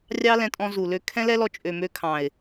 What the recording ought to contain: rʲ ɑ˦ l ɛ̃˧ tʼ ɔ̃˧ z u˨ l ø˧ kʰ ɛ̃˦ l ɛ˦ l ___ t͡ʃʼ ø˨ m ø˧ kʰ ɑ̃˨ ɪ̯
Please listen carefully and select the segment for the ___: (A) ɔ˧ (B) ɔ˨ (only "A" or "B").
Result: A